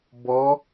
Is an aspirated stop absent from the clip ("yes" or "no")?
yes